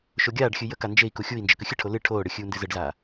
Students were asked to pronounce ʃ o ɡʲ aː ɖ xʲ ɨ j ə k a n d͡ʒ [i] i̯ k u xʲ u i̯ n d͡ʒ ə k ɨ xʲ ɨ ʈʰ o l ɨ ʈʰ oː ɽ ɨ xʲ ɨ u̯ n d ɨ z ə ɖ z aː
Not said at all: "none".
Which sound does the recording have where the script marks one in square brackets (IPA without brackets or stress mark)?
e